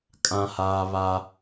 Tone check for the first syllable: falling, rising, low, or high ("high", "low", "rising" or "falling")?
high